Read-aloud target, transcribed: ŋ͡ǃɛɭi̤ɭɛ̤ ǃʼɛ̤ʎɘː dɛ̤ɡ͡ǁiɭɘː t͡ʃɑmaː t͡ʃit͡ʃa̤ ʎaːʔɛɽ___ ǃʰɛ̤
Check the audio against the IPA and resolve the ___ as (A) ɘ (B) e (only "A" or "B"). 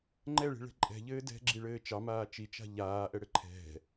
A